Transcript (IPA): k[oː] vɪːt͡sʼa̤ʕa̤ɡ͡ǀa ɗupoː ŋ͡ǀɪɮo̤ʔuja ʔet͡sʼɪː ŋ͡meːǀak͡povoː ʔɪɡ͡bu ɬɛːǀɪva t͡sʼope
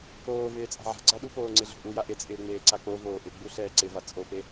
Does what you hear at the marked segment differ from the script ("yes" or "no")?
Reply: no